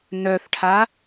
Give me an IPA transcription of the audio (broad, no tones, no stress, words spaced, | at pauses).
nœθʈʰa